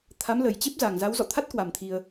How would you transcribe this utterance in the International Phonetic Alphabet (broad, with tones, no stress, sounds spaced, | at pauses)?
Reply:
t̪ʰ a˨˦ m l ə˨˩ j t͡ɕ e˦˥ p̚ z a˨˩ ŋ z a˨˦ w z ɔ̰˧˨ t̪ʰ a˦˥ t̚ k w a˨˩ m t̪ʰ i˧ ə̯